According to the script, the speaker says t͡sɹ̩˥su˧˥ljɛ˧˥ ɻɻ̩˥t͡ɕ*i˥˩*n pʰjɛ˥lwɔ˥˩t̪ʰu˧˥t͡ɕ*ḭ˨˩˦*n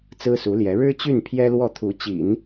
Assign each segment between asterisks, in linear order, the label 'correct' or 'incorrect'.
incorrect: y˥˩, correct

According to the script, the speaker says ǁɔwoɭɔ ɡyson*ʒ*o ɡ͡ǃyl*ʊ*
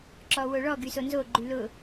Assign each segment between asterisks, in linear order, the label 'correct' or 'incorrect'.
incorrect: z, correct

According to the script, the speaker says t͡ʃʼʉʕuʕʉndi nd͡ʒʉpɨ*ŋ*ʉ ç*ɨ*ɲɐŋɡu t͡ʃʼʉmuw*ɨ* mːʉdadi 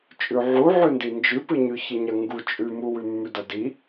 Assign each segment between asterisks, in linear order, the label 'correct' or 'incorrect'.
incorrect: ɲ, correct, incorrect: ʉ

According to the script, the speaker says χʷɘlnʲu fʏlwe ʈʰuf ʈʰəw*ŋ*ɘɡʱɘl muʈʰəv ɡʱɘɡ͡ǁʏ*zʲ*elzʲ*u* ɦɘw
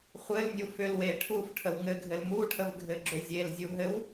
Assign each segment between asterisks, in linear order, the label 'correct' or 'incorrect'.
correct, correct, correct

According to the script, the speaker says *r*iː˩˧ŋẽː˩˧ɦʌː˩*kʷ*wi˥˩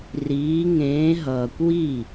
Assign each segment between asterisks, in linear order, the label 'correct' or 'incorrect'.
correct, correct

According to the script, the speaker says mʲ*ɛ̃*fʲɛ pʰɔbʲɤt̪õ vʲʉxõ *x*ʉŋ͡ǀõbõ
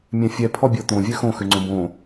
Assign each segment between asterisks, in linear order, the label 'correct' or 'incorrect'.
correct, correct

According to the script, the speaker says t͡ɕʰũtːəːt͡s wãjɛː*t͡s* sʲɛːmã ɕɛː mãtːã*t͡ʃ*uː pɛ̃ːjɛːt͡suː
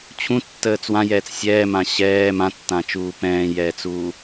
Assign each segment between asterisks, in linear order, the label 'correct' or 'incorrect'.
correct, correct

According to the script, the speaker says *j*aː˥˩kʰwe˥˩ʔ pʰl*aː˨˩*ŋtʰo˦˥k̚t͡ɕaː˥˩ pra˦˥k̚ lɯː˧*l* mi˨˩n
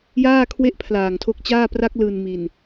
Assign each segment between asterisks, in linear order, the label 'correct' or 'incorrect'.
correct, correct, incorrect: n

